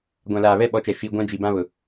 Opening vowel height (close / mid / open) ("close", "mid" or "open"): open